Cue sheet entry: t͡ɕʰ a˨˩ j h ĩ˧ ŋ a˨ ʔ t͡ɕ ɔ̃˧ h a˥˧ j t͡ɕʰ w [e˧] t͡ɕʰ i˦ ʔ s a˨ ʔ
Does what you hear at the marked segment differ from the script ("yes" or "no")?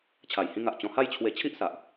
no